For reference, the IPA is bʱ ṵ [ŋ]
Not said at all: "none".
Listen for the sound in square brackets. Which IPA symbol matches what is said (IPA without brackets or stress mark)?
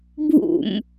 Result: m